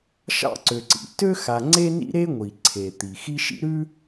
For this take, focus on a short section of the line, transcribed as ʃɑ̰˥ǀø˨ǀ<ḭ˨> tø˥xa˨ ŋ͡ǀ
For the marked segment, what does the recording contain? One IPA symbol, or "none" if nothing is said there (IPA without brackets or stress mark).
ḭ˩